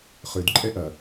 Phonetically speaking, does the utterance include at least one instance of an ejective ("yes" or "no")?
yes